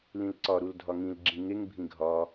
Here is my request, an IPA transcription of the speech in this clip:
l ĩ l ǀ ɒ ɾ u l dʱ ɒ ŋ ĩ l ɡ͡ǁ ĩ ŋ e ŋ bʱ ĩ ɡʱ ɒ

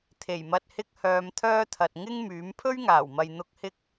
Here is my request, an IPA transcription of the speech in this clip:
t̪ʰ e˨˩ j m ɐ˧ t̚ h ɪ˥ k̚ h œː˧ m t̪ʰ œː˥ t̪ʰ ɐ˨ t̚ ŋ ɪ˥ ŋ m yː˨˥ m pʰ ɵ˥ ɥ ŋ aː˨˩ w m ɐ˨ j n̪ ʊ˧ k̚ h ɪ˥ k̚

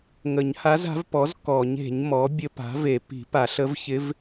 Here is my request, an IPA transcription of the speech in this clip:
ŋ ə˨˩˦ ɲ h a˧˥ z a̤˩˥ v p ɔ˩˥ z k ɔ˨˩˦ ɲ e̤˨˩˦ ɲ m ɔ˩˥ bʲ ə˧˥ p a̤˩˥ v e˨˩˦ p i̤˨˩˦ p a˨˩˦ ɬ ə˧˥ v ç ɪ˧˥ v

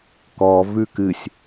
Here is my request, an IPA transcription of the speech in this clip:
k ɔ v ʉ k ɨ sʲ

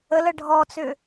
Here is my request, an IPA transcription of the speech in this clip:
ə l ə ɖʱ ɔ t͡s ʏ

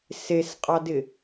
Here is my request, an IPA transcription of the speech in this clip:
s e s qʼ ɑ d ɪ

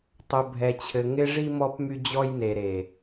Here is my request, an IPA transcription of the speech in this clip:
tˤ ɵ˨ bʱ ɛ˨ t͡ɕʰ ɘ˨ ŋ ɪ˦ ʐ i˦ m ɔ˦ p m y˦ d͡ʑ ɔ˦ j n e˨ ɾ e˨

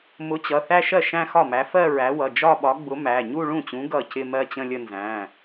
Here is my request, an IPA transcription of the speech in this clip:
m ʊ˨˥ t͡ɕ ʌ˩˧˩ θ æ˥˧ ʃ ɜ˥˩ ʃ æ̃˥˧ x ɒ˥˩ m æ˨˥ f ɜ˥˧ ɹ æ˨˥ w ʌ˩˧˩ d͡ʒ ɒ˥˧ ɓ ɒ˨˥ ɡ͡b ʊ˨˥ m æ˩˧˩ ɲ u˥˧ ɭ ũ˥˩ t͡ɕ ũ˨˥ ɡ ʌ˥˩ c ɪ˥˧ m ɜ˥˧ t͡ɕ ə̃˥˧ lʲ ə˥˧ n z æ̃˩˧˩

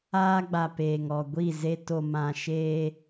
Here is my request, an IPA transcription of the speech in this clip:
aː˦ ɡ͡b a˨ p eː˨ ŋ ɔ˨ ɡʷ i˦˨ z e˦ t o˨ m ã˨ ʃ eː˦

